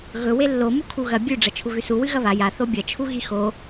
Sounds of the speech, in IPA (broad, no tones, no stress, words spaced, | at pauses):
ɣɵ welːo mukʰuɣɐ bʲʉ ɖ͡ʐɐt͡ʃʰuɣʉsu wɨɣɐβa ja θobʲɐ t͡ʃʰuɣixo